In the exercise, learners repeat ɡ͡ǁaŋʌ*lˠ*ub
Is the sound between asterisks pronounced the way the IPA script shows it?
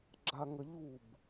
no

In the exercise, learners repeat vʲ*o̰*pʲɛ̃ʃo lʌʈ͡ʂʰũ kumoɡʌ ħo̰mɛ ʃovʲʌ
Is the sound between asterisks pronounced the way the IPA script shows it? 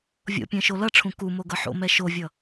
yes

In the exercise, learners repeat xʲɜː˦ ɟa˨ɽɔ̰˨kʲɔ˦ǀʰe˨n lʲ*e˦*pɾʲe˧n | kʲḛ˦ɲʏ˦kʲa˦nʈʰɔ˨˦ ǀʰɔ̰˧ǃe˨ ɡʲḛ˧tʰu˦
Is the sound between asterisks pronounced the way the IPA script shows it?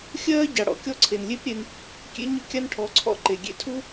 yes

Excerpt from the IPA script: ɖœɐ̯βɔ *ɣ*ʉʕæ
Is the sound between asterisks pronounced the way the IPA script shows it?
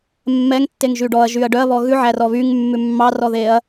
yes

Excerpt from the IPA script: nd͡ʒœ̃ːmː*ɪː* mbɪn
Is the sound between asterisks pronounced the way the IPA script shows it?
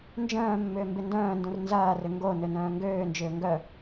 no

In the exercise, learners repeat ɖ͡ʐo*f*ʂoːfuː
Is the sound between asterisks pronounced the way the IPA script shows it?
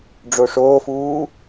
no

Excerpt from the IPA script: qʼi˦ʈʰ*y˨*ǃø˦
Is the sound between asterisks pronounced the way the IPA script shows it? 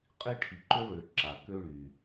no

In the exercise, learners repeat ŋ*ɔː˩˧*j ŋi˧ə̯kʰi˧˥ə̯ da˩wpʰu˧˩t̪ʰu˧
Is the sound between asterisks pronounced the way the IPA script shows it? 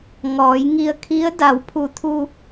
yes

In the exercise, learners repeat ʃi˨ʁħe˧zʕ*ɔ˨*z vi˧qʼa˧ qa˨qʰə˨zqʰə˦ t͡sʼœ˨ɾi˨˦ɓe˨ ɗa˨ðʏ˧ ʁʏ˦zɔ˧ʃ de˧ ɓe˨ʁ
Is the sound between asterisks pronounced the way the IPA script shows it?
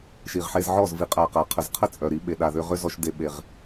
no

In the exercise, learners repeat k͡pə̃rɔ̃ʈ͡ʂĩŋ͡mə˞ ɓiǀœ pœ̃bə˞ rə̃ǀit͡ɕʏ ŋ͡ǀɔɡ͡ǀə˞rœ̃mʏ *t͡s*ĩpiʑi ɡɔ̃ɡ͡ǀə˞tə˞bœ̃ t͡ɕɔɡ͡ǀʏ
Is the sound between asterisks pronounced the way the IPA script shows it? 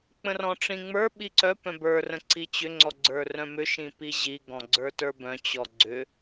no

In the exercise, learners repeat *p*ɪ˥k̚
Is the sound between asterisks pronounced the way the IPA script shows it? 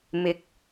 no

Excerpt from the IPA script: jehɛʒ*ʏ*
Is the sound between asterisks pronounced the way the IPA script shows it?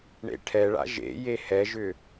yes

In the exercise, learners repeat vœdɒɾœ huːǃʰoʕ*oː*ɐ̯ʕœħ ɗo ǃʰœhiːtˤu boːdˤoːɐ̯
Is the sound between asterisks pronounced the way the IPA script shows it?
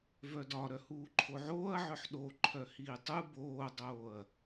yes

